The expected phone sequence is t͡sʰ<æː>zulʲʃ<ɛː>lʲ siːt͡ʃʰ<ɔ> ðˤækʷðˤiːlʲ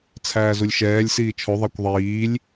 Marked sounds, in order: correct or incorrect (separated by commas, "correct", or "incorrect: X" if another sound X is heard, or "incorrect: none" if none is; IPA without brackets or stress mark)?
correct, correct, incorrect: o